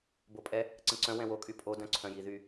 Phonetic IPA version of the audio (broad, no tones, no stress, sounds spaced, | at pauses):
b o pʼ ɛ | ǀ ə̃ ǀ œ̃ w ɛ̃ w o kʼ y pʼ o d œ̃ ǀʰ œ̃ j i ð y